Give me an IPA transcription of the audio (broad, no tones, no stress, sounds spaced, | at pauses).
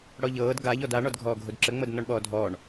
ɽ ɔ ʎ ɤː d ɡ a ʎ ɔ d a ɳ ɔ d ɡʱ ɔː ɡʱ o d ǁ ə ŋ͡m ɤ d n ɔ ɳ ɓ ɔː dʱ ɔː ɳ